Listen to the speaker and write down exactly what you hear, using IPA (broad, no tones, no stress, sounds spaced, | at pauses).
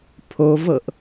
pʰ o v ɤ ʔ